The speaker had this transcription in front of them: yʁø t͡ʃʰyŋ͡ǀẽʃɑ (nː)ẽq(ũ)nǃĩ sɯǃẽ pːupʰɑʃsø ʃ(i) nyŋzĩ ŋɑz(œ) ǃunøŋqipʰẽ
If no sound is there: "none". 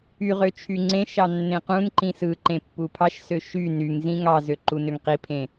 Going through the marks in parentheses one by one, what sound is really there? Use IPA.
nː, ũ, y, ø

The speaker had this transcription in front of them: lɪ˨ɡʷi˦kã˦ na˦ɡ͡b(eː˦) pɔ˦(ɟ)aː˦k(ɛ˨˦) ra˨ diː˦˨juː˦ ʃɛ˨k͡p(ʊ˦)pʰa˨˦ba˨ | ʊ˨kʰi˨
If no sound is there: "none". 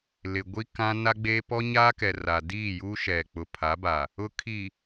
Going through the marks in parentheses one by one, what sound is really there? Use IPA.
eː˦, ɲ, ɛ˨, ʊ˨

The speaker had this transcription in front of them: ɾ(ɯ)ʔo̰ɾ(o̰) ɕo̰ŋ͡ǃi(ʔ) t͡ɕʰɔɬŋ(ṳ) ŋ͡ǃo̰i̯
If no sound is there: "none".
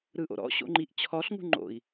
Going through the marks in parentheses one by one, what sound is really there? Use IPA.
ɯ, ɔ̰, ʔ, ṳ

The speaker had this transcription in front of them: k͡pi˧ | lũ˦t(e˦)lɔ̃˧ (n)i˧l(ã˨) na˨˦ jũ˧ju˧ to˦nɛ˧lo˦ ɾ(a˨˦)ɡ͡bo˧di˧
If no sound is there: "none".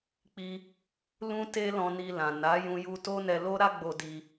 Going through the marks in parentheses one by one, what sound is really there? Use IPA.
e˦, n, ã˨, a˦

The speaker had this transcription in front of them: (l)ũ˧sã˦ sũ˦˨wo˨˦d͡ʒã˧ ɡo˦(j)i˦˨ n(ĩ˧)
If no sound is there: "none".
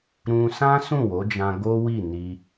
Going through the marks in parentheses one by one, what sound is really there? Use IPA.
ɾ, w, i˧

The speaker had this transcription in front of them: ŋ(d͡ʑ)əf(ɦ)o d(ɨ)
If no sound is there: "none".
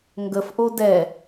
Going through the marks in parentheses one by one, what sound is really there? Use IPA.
ɡ, ʔ, ɛ

